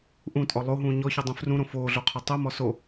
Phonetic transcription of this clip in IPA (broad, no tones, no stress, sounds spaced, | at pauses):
ʔ ũ tʼ ɔ lˠ o ɦ ũː ɲ ɔ ç u dˤ ũ f r ũ ɾ õ f oː ɮ o qʰ ɵ tˤ u m ɔ s o